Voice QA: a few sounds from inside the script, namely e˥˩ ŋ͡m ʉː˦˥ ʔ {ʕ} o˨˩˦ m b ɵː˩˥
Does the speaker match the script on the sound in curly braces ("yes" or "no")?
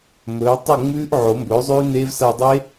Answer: yes